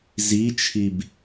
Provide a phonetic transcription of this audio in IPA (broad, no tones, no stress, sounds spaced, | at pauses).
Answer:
z i t͡ʃʰ i b